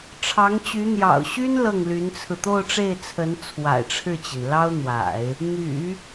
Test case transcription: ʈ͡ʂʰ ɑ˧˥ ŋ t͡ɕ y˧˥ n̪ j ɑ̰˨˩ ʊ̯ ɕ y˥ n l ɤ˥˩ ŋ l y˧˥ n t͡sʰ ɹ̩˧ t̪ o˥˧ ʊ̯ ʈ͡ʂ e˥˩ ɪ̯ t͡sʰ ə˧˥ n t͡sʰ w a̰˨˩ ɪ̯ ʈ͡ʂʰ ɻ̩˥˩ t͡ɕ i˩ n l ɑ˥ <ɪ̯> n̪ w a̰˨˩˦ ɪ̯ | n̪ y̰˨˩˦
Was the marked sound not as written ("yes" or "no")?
yes